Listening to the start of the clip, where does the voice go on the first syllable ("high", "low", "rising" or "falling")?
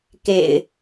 low